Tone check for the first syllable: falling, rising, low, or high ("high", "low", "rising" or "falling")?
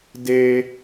low